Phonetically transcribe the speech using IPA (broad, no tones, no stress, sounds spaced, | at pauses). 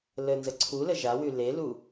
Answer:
l ə n z ə ǀʰ u l ə ʒ a w ʉ l e l u